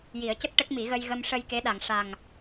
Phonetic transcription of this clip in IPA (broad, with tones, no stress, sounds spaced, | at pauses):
j i˨˩˦ ə̯ c ə˦˥ k̚ ʈ ə˦˥ k̚ m i˨˩˦ ɣ ə˧ j ɣ ə˧ m ʂ ə˧ j k e˧˥ ɗ a˨˩˨ ŋ ʂ a˨˩ ŋ